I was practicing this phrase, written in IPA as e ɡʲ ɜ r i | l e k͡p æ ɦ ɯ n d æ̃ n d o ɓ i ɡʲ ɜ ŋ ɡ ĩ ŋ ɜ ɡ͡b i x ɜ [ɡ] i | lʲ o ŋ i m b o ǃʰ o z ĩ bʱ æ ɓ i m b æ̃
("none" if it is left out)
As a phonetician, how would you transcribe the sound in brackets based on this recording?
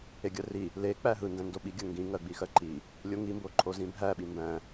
ǃ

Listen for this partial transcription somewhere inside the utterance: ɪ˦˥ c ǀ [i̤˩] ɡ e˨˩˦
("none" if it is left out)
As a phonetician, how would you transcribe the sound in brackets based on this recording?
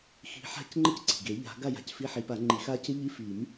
i̤˩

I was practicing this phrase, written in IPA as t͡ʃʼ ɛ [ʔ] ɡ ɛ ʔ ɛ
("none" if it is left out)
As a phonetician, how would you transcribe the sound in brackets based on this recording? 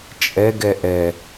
none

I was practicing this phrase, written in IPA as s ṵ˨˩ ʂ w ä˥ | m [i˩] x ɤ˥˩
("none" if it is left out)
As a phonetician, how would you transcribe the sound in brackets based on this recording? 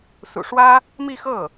i˥˧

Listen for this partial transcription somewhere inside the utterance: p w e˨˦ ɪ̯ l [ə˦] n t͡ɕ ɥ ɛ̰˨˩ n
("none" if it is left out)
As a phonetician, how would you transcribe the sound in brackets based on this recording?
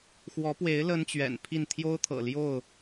ə˦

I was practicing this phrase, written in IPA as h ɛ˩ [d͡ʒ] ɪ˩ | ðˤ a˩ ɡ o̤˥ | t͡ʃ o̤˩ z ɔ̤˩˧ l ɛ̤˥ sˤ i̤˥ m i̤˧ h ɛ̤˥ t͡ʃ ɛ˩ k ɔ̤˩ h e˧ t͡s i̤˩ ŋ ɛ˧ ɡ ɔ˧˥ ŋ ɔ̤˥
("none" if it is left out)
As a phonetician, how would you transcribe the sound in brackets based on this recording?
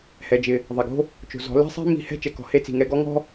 d͡ʒ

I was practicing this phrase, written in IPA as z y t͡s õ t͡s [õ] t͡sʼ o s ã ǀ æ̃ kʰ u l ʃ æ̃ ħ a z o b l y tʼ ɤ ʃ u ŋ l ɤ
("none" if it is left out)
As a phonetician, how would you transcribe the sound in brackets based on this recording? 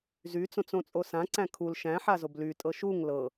õ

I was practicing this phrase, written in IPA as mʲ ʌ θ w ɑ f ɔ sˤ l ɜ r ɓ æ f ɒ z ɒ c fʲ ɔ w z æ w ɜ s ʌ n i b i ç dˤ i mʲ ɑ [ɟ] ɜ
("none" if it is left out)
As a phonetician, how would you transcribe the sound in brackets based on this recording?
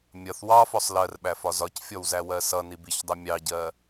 ɟ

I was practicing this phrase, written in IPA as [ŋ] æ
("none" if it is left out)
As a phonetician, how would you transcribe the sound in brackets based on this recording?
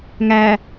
ŋ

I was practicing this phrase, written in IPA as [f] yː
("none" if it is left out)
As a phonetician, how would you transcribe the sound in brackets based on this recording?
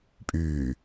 pʼ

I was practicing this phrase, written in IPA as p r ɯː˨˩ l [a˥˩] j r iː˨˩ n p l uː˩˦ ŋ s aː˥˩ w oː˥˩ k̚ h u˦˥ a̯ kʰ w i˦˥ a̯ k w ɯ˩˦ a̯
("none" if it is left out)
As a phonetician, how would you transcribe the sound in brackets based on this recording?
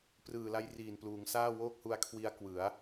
a˦˥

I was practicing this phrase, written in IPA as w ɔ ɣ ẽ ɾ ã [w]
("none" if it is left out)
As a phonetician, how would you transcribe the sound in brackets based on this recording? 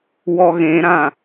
none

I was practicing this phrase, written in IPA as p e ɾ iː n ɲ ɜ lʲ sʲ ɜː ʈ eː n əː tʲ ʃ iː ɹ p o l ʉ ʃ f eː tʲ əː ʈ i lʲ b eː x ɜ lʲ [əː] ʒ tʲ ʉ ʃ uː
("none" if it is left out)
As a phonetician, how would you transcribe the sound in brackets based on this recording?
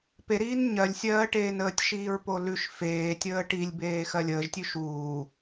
əː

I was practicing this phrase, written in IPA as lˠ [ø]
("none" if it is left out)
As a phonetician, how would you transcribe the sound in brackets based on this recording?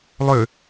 ø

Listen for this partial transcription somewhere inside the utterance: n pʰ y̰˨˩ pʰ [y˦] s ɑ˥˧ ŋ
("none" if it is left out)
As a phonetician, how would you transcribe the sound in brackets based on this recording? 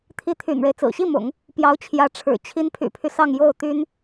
y˦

